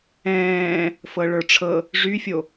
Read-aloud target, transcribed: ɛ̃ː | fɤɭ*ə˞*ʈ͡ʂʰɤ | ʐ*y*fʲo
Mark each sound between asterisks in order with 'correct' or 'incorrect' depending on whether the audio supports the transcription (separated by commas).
correct, correct